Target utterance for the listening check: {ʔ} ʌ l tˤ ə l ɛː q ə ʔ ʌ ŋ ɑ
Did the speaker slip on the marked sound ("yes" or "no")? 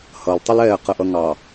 yes